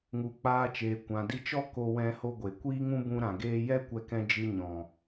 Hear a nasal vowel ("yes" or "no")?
yes